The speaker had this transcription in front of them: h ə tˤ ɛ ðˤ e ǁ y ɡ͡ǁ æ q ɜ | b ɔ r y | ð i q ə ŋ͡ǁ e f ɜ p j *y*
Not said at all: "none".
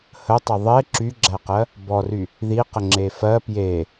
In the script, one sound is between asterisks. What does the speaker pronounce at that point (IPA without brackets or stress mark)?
e